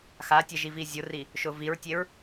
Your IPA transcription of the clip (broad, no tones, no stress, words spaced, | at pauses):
xatʲɛ ʒivizʲʊri | ʃʊviɹtʲeɹ